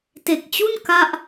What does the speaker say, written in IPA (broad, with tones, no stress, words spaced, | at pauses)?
te˨˩k̚t͡ɕu˥˩n ka˥˩ʔ